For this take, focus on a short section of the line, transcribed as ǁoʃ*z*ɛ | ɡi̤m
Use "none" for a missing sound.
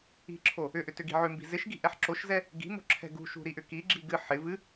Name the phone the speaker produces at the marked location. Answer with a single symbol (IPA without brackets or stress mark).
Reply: z